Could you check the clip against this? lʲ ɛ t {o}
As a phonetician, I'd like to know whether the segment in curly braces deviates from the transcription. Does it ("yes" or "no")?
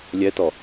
yes